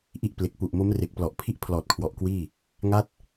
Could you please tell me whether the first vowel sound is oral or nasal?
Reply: oral